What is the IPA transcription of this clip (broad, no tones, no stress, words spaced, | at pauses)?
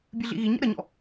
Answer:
bʲɨɮḭɣiɲɛ̰ ɾəɲɔ̰